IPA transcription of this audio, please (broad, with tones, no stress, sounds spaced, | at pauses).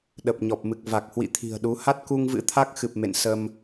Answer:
ɗ ə˨˩ p̚ ɲ ɔ˨˩ p̚ m ɨ˨˩ k̚ v a˨˩ k̚ h w ḭ˧˨ t̪ʰ i̤˨˩ ə̯ ɗ u˨˦ h a˦˥ t̚ k u˧ ŋ v ɨ̰˧˥ t̪ʰ a˦˥ k̚ x ɨ˨˩ p̚ m ḛ˧˨ n s ə˧ m